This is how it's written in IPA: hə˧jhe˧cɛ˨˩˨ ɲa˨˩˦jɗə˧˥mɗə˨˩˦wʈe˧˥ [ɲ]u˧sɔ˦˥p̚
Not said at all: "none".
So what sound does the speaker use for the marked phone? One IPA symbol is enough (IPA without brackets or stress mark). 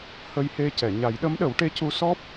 c